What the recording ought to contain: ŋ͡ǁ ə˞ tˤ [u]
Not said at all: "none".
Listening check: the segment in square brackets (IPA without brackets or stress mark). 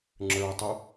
u